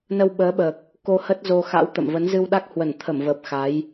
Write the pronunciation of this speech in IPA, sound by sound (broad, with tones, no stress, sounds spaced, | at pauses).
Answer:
n ə˧ w ɓ əː˨˦ ɓ əː˨˩ k̚ | k o˧ h ə˦˥ t̚ z o˧ x a̰˧˥ w t̪ ə̰˧˨ m v ə˨˦ n z ɨ˧ w ɗ a˦˥ k̚ h w ə˧˩ n t̪ʰ ə˧˩ m v əː˨˩ p̚ x a˨˦ j